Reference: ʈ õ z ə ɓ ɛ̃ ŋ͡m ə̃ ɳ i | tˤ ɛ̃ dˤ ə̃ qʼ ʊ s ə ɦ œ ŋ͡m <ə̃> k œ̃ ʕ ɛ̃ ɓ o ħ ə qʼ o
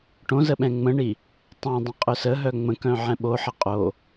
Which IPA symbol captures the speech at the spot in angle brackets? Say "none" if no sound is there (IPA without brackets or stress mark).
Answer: ə̃